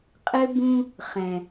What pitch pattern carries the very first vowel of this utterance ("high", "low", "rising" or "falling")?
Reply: high